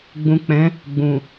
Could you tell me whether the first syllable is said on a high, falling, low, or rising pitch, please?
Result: low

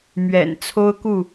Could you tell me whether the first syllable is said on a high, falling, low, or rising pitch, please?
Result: low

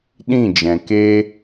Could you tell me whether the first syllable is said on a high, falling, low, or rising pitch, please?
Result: falling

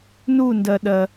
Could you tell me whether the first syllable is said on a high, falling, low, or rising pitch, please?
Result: falling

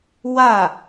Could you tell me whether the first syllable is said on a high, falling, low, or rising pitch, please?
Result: falling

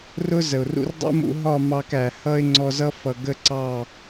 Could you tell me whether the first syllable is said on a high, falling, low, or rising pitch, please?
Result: high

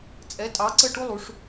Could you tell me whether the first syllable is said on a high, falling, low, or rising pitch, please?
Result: rising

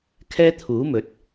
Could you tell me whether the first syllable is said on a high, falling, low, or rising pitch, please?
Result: high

